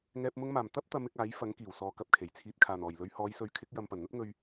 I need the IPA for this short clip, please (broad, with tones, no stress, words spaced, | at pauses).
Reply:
ŋɛː˨p̚mʊ˧ŋmaː˨˩m t̪ɐ˥p̚t̪ɐ˨˧mɪ˨k̚ aː˨˥jfɐ˨˥ŋ kiː˨˩wsɔː˨kɐ˨p̚kʰe˨˩j t͡sʰiː˨t̚kʰaː˨˩nɔː˨˩jlɵ˧ɥ hɔː˨˧jsɵ˨˥ɥkʰɪ˨˥k̚ jɐ˧m pɐ˨˩nn̪ɐ˥t̚ ŋɵ˧ɥ